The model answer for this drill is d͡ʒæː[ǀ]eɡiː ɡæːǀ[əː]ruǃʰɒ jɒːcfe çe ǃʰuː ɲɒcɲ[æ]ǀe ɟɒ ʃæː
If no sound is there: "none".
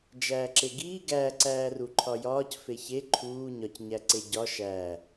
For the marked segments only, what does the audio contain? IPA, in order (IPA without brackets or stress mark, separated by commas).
ǁ, æː, æ